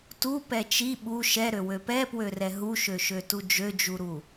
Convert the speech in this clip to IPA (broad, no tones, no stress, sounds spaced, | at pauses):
t u p ɛ t͡ʃ i ɓ u ʃ ɛ ɾ ø w ø p ɛ p w ø r ɛ ɦ u ʃ ø ʃ ø t u d͡ʒ ø d͡ʒ u ɾ u